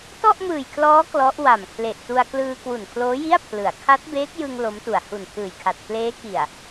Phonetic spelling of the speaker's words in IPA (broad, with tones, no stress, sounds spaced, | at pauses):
t ɔ˥˩ ʔ m ɯː˨˩ j kʰ l ɔː˦˥ k l ɔ˦˥ ʔ w a˨˩ m kʰ l e˨˩ ʔ t u˧ a̯ k l ɯː˧ k w u˨˩ n kʰ l oː˦˥ j i˥˩ a̯ pʰ l ɯ˩˦ a̯ kʰ a˦˥ t̚ b eː˦˥ k̚ j ɯ˧ ŋ l o˦˥ m t u˨˩ a̯ h u˨˩ n pʰ ɯː˨˩ j kʰ a˨˩ t̚ k l eː˦˥ k i˨˩ a̯